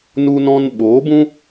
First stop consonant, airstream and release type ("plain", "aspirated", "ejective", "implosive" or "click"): implosive